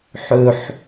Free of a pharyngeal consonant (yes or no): no